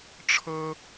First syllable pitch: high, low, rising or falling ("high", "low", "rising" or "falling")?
high